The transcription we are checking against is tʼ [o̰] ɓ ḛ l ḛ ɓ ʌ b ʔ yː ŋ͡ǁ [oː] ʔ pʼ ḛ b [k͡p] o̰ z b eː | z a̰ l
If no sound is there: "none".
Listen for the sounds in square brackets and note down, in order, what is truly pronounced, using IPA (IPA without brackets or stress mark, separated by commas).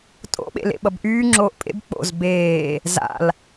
o̰, oː, k͡p